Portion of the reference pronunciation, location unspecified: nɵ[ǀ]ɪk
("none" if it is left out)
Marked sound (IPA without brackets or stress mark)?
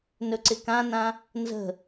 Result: ǀ